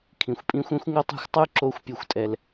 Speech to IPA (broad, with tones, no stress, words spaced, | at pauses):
kʰĩ˨xʷpʼĩ˦xʷ ẽ˦xʷŋo˦tˤa̤˦xʷtˤu˦ ǁo˦xʷpʲo˦˨xʷtʼɛ˦l